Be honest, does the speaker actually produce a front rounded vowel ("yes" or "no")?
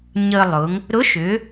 yes